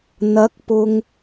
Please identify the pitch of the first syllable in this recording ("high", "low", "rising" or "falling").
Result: rising